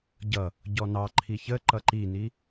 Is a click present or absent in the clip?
present